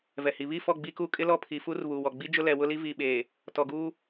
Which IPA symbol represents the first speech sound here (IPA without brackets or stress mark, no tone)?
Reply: v